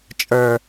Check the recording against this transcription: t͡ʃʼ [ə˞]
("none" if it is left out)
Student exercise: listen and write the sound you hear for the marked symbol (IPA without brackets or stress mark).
ə˞